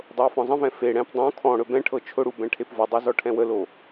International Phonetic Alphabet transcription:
dˤ ɤ w f ɔ̃ zˤ ə̃ v ɛ̃ f e ɽ ɛ̃ p dˤ õ kʰ ɔ̃ ɽ ɵ b ɛ̃ ʈʰ ɤ t͡ʃʰ ʊ ɽ u b ɛ̃ ʈʰ e p v ʊ dˤ u z ɔ ʈʰ ɛ̃ w ə l o

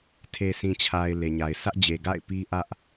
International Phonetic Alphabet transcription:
tʰ e˨ sʰ ĩ˨ t͡ɕʰ a˨ ɪ̯ l e˨ ɲ a˨ ɪ̯ s ä˦ ʔ d͡ʑ e˨ ɡ a̰˦˨ ɪ̯ p i˦ ʔ ä˦ ʔ

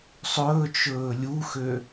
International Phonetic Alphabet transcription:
sˤ ɵː t͡ʃ ɵː lʲ u x ø

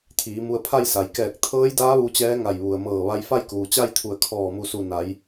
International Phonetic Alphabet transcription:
t̪ʰ iː˩˧ m u˧ ə̯ pʰ a˥˨ j s a˩ j k ɛː˧˩ k̚ t̪ʰ ɤː˧˥ j d aː˧˥ ʋ u˧ t͡ɕ ɛː˧˥ ŋ a˧˩ j ʋ u˩ ə̯ m ɤː˧˩ ʋ a˧ j f a˥˨ j k uː˩ t͡ɕ a˥˨ j t̪ʰ u˧˩ ə̯ kʰ ɔː˧˩ m u˧˩ s u˧˩ n a˩˧ j

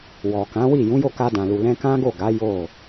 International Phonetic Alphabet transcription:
w ɔ˨ k ã˨˦ w i˦˨ j ũ˨˦ j o˦˨ k a˧ d ã˨ l u˨ l ɛ̃˧ k ã˦ ɡ o˦˨ ɡ a˨˦ j o˦˨

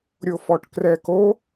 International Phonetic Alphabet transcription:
ɾʲ o f ɔ ʈ k r ɛ k o

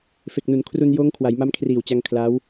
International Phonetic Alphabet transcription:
f e˨˩ k̚ n u˩˦ n kʰ r u˧ n j oː˦˥ ŋ kʰ w a˩˦ j m a˦˥ m kʰ r iː˨˩ w t͡ɕ a˧ ŋ kʰ l a˦˥ w

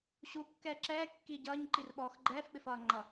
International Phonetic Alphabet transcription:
ɕ u kː ɛː ǁ ɛː kː iː ɟ ʌː ɲ ǃ i r ɓ ɔː x ɡ͡ǃ ɛː f ɓ ɪ f ʌː ŋ͡ǃ ʌ

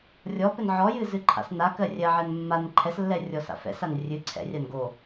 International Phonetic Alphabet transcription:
rʲ ɔ p ɘ n ʕ ɔ j ɨ z ɨ ǃʰ a̰ s n a k ɜ rʲ ɜ ʕ ɛ n mː a n ǃʰ ɛ s lː ɛ rʲ ɔ s a̰ f ɛ̰ s a n rʲ ɨ ǀʰ ɛ̰ rʲ a n ɡ o

